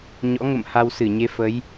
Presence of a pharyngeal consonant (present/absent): absent